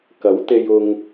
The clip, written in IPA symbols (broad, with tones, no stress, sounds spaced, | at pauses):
k ɐ˨˥ w t̪ e˧ j ʊ˥ ŋ